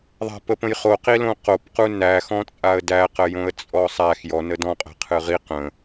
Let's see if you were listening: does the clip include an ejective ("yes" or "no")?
yes